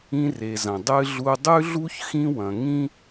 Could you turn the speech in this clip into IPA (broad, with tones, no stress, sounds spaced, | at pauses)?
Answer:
ĩ˧ r e˩ z ɐ̃˩ dˤ ɨ˧ ɮ u˧ dˤ ʉ˥ ɮ u˥ ç x ĩ˥ w ɐ̃˩ ŋ ĩ˥